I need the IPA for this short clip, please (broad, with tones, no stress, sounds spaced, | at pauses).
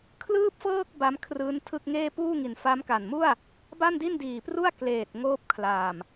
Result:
kʰ l ɯː˥˩ p̚ f ɤː˥˩ k̚ b a˦˥ m kʰ r ɯː˦˥ n tʰ ɯ˥˩ k̚ ŋ eː˥˩ p uː˥˩ ŋ i˨˩ n f a˦˥ m k a˨˩ n m u˥˩ a̯ | b a˥˩ n d i˥˩ n d iː˨˩ p r u˥˩ a̯ k l eː˨˩ t̚ ŋ oː˥˩ p̚ kʰ l a˨˩ m